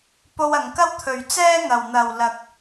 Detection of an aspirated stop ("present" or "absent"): present